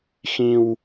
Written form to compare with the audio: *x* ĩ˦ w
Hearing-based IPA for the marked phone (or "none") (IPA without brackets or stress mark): x